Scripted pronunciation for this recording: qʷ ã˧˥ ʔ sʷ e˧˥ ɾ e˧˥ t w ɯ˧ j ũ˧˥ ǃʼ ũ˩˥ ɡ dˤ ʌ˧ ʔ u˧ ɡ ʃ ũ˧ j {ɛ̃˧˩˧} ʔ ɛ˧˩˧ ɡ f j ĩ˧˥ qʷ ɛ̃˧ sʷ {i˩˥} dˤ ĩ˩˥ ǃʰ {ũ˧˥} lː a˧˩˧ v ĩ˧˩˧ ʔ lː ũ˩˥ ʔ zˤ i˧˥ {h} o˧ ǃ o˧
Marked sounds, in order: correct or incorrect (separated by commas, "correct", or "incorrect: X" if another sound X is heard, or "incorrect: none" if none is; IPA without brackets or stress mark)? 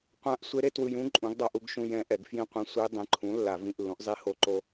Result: incorrect: ɛ̃˧˥, incorrect: i˧˥, incorrect: ũ˩˥, correct